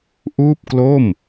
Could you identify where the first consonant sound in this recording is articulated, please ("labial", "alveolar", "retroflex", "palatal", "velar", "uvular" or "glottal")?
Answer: glottal